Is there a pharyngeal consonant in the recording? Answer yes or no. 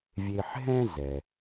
yes